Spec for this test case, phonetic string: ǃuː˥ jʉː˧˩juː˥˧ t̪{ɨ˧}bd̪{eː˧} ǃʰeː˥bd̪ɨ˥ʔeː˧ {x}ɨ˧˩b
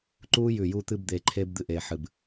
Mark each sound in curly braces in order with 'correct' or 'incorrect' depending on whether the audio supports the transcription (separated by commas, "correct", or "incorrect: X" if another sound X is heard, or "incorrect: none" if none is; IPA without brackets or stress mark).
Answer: incorrect: ɨ˥˧, correct, incorrect: ħ